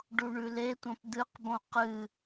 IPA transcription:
ɖ u ɳ ʉ l e tʷ ɐ̃ p d̪ ɨ q b õ q ɨ

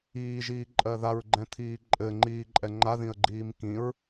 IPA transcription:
iː ʒ iː ǃʼ ɜ ð a ɹ ɡ͡ǃ ɛ̃ t̪ʰ iː ǃʼ ɘ ŋ͡ǃ iː ǃʼ ɛ ŋ͡ǃ a ð ĩ ə̯ ɡ͡ǃ iː m k ĩ ɹ

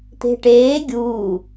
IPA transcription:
t̪ e̤ ʈ eː ɡʲ uː

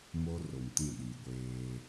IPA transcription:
m o˦ r o˨ m t ĩ˦˨ ɗ iː˨ ɡʷ eː˦

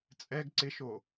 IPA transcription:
t͡sʼ ɛ ɡ ǀ ɪ ʃ o

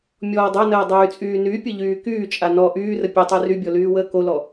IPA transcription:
mʲ ɔː dˤ a n əː dˤ yː t͡sʼ yː n y pʲ ə ʎ yː k yː t͡ʃʼ a n ɔ ʔ yː r ə pʲ e tˤ y r y bʲ ɔ l yː w əː k o l ɔ

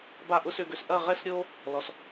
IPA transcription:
b a˥˧ ʔ ʊ˥ s ʏ˥˧ ɡ ø˧ s ʔ ɐ˥˧ ʁ ɛ˥ s ɾʲ o˥ | l ɔ˧ s

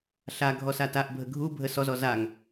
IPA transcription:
ɬ a ɡʱ ɔ s a t a ʔ bʱ ə ɡʱ u bʱ ə s ɔ z ɔ z a ŋ

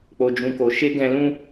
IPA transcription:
k͡p o˨ d͡ʒ ũ˨ k o˨ ʃ e˧ ɡ ɛ̃˧ l ũ˦

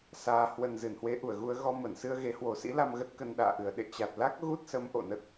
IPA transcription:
s aː˨˩ h w ə˨˩ n z ɨ˧˩ n h w e˨˦ ʔ u˧˩ ə̯ ɣ u˧ ə̯ ɣ ɔ˧ m ə˧˩ n s ɨ˧ ə̯ ɣ e˨˦ h w o˨˩ s ḭ˧˥ l a˧ m ɣ ə˦˥ t̚ k ə˧ n ɗ a̰ː˧˨ ʔ ɨ˨˩ ə̯ ɗ ḛ˧˨ t͡ɕ a˨˩ t̚ l a˦˥ k̚ ɣ u˦˥ t̚ s ə˨˦ m ʔ o̰˧˨ n ə˦˥ t̚

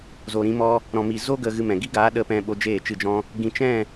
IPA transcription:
z o˨ ɾ ĩ˧ m ɔ˧ | ɾ ɔ̃˨ m i˨ z o˦ ɡ ə˧ ɣ ɨ˧ m ɛ̃˨ ɡ i˦ ɡ aː˨˦ ɗ ə˧ p ɛ̃˧ ɓ o˧ d͡ʒ eː˦˨ t͡ʃ ɨ˦˨ d͡ʒ ɔ̃˦ | ɡ ĩ˨ t͡ʃ ɛ̃˦˨

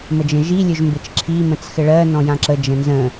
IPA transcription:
m ə d͡ʒ ə̃ ʒ i lʲ ɵ ʒ m b ɘ t͡ʃ ǁʰ i m ə̃ t͡s x ɘ ɭ ɜ n ɔ̃ j ã ǁ ə d͡ʒ ə̃ n z ə̃

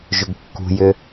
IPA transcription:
ʒ ʏ ɡ kː ṳ j ʏ

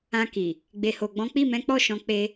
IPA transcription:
ã˧ k i˨ | ɡ͡b e˨ h o˨ ɡ͡b ɔ̃˨˦ k͡p i˦˨ m ɛ̃˨˦ k͡p ɔ˦˨ ʃ ɔ̃˨˦ k͡p e˧

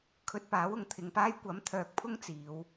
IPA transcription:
kʰ ɵ˧ t̚ p aː˨˥ w ʊ˨ ŋ t̪ʰ ɪ˨ ŋ p aː˥ j kʷ ɐ˨˥ m t̪ʰ œː˨ k̚ pʰ ʊ˥ ŋ t͡s iː˨˧ w

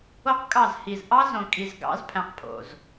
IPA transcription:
o˦ q kʼ ɑ˦˨ z h i˨ z ʔ ɑ˦ z õ˨ kʼ i˨ z ɡ ɑ̰˨˦ z pʰ æ̃˨ q pʰ o̰˨ z

